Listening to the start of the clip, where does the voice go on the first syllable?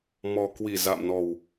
low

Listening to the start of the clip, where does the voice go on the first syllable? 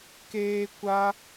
high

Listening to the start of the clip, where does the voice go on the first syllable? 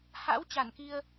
rising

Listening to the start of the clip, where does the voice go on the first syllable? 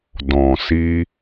low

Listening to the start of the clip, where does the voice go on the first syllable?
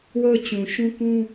falling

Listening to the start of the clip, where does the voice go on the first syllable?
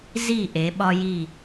falling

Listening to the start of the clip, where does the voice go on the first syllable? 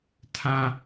high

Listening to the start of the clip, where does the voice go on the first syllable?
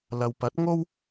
low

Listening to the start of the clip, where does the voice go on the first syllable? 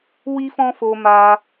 high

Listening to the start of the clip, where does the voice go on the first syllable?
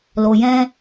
low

